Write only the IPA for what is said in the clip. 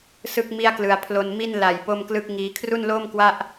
sɯ˥˩k̚ mi˥˩a̯klɯ˧a̯ pʰlo˧n mi˥˩n la˨˩j po˥˩mklɯ˥˩k̚ ŋiː˧ kʰru˥˩nloː˥˩m kwa˥˩ʔ

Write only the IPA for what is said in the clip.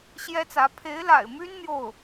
ɕjɛ˥t͡sä˧˥ pʰe˧˥ɪ̯la̰˨˩ɪ̯my˥n n̪jo˥˩ʊ̯

